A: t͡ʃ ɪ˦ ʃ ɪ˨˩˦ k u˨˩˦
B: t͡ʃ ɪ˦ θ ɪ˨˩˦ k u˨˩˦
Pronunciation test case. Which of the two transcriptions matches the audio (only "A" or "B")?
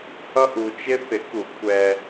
B